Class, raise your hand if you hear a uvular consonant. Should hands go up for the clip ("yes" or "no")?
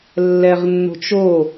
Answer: yes